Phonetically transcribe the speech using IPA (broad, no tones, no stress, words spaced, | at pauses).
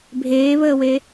bʱeːβəːwe